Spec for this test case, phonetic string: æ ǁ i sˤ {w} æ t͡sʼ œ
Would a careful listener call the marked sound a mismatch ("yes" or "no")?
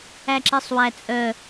no